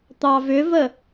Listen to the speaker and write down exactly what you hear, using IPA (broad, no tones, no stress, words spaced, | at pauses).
t̪ɑvʏvə